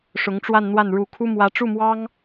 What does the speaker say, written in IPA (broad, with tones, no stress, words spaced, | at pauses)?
ʂʊ˧˥ŋʈ͡ʂwa˥˧nn̪wa˥˩n ɻu˧˥kʰu˥ mwä˧˥ʈ͡ʂu˥˩mwɑ˥ŋ